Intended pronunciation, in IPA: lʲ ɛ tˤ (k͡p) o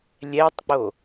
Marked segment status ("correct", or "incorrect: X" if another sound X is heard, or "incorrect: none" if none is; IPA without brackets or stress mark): correct